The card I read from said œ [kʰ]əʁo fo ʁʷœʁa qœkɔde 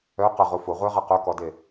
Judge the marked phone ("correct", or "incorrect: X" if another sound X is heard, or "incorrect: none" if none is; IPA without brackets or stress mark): incorrect: q